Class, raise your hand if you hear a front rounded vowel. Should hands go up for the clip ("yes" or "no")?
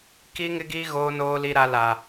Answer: no